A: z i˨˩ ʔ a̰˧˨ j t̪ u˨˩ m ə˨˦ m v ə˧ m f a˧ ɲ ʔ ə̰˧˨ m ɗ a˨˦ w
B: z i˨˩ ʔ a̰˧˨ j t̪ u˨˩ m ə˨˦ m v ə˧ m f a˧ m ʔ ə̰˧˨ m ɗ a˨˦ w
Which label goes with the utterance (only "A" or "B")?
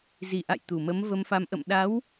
B